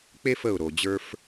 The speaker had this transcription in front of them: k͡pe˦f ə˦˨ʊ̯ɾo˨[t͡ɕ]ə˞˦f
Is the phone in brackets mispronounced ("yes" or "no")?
yes